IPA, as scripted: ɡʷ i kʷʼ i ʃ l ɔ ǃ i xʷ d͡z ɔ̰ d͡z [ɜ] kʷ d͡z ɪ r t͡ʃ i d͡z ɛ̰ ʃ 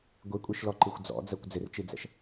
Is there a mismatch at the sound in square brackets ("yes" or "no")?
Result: no